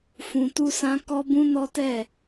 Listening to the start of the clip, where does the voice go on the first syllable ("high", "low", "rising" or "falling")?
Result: high